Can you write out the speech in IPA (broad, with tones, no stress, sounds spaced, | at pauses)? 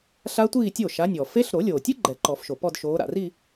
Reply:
ɬ a˦˥ tʷ iː˥˧ tʲ o˥˩ ʃ a˨˦ nʲ ɔ˩ f e˦˥ ɬ ɾ o˨˩˦ lʲ oː˩ tʲ ɨ˦˥ ɡ͡ǃ ɛ˨˩˦ ǃ ɔ˨˩˦ f ʃ o˩ p ɔ˥˧ d ʃ oː˨˦ ɾ a̰˩ r i˥˧